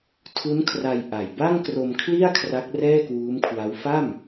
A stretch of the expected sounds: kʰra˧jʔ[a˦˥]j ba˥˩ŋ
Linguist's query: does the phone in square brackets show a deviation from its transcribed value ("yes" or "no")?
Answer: yes